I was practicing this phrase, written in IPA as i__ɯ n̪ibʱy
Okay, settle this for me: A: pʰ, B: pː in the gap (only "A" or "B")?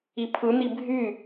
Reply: A